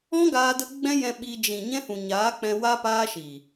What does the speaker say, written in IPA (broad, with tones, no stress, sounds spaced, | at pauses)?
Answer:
ɔ̃˦ ɡ aː˧ d ə˦ ɡ͡b ɛ̃˦ j ɛ̃˧ ɓ i˧ d͡ʒ ĩ˨ ɲ ɛ̃˦ h ũ˨ ɲ aː˨˦ k͡p ɛ̃˧ w a˦ p aː˦ ʃ i˨